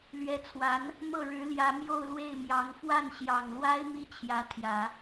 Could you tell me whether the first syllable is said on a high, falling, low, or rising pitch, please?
rising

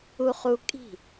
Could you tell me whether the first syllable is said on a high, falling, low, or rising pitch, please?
high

